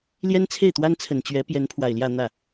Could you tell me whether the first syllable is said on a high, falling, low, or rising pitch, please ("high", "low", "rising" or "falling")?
high